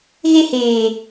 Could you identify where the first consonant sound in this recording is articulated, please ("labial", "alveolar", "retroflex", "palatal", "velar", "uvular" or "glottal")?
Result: velar